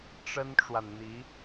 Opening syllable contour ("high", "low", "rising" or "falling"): high